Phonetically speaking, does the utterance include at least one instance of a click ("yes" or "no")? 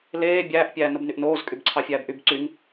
yes